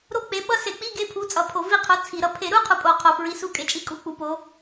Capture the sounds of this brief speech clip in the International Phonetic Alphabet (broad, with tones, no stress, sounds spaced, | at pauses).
ɾ o˥˨ k͡p e˨˥ ɓ ʌ˧˥˧ s e˧˩˧ k͡p i˧˥˧ ɡ e˧˥˧ pʰ u˨˥ t͡sʼ ʌ˨˩ pʰ o˧˩˧ v i˥˨ qʰ o˨˥ t͡sʰ i˧˩˧ ɾ ʌ˨˥ pʰ e˧˩˧ ɾ u˥ qʰ u˨˥ pʼ o˧˩˧ qʰ o˨˩ f ɹ i˨˥ s u˧˥˧ kʼ e˨˩ t͡ʃʼ i˥˨ kʼ u˧˥˧ k͡p u˨˥ p o˨˥